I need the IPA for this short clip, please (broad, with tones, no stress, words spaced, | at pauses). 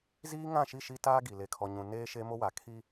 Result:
ziː˦ŋã˦˨ʃi˦˨ ʃi˦taː˦ɡi˨ le˨kʰɔ˨ɲũ˨ neː˦ʃe˦mo˦wa˨ kʰi˦